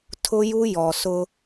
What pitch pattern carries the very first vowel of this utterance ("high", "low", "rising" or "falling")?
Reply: high